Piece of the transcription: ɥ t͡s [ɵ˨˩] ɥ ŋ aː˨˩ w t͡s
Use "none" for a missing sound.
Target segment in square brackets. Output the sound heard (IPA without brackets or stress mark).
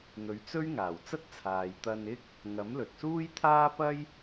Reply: ɵ˥